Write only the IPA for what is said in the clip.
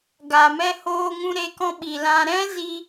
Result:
ɡa˨mɛ˧hoː˧ŋũ˧ ɾe˧kɔ̃˧ ɓi˨lã˧ ɾɛ̃˦zi˧

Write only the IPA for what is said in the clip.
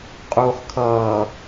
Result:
qʼuːχkʰʌː

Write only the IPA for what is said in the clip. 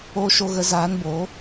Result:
oː˧ʃo˧ɣə˨˦ zaː˨˦nboː˨˦

